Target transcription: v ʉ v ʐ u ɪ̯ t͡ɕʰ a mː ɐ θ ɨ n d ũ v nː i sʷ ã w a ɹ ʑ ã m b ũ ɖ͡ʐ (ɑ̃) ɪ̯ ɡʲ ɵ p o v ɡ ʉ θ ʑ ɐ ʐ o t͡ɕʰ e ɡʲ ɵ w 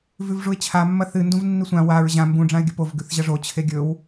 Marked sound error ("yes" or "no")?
yes